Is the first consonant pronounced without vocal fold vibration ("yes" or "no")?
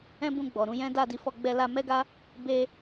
no